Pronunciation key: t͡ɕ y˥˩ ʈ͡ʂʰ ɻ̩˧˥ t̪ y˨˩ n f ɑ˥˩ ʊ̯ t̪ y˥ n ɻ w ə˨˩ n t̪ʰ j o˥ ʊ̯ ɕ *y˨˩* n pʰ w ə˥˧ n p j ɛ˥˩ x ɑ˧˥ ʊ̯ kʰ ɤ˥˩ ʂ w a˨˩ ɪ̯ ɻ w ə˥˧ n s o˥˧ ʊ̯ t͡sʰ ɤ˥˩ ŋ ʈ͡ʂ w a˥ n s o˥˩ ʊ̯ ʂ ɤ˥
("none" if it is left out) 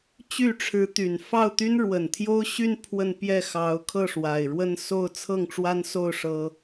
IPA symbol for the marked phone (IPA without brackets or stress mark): y˥˧